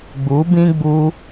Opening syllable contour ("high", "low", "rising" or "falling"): rising